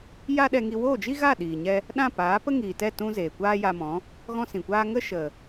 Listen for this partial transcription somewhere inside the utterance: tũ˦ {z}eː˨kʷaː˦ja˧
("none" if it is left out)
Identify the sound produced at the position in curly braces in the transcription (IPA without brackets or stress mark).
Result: z